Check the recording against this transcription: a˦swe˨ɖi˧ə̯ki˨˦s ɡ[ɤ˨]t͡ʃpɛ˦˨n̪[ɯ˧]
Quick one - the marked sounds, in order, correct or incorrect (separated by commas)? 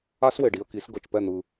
correct, correct